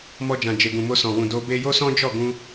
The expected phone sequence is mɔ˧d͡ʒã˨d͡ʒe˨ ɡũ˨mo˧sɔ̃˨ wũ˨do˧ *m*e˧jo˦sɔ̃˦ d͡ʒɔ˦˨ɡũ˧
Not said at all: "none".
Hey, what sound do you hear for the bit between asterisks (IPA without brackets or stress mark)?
b